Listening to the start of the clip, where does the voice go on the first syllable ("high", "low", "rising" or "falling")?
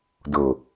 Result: low